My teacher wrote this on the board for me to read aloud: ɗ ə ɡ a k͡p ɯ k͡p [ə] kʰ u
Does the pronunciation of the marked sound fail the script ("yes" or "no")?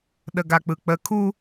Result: no